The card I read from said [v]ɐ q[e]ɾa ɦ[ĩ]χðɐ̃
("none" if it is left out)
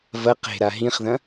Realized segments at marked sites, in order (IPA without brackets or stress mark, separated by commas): v, e̤, ĩ